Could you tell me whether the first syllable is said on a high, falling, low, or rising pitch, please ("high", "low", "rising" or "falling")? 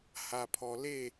low